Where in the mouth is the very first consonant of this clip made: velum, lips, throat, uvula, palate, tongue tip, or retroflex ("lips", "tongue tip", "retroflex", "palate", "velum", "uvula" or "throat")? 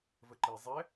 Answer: lips